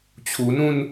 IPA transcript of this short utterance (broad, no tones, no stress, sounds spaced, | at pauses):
t͡ɕʰ u n ũ n